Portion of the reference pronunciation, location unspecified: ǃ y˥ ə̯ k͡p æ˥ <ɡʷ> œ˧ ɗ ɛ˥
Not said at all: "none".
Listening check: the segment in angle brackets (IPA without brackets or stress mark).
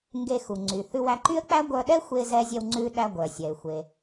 ɡʷ